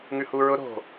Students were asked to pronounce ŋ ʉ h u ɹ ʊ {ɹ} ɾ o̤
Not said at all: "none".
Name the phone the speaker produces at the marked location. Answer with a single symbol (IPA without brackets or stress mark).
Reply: none